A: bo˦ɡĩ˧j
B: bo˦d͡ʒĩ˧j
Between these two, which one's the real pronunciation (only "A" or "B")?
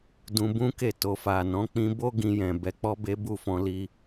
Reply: A